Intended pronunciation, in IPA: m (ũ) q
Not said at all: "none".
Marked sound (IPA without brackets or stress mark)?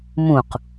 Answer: ũ